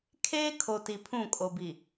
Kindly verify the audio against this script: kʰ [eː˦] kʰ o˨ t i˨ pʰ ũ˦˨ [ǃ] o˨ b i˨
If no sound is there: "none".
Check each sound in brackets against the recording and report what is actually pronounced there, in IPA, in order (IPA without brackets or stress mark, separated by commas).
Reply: eː˦, kʼ